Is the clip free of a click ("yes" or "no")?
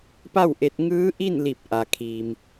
yes